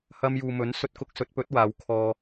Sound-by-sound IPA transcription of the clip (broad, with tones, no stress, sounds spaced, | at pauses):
h ɐ˧ m j uː˨ m ɵ˨˥ n s ɵ˧ t̚ k ʊ˧ k̚ s ɵ˨˥ t̚ p ɵ˨˥ t̚ w aː˨˧ w kʰ ɔː˧